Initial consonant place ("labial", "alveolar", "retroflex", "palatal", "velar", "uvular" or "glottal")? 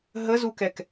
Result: glottal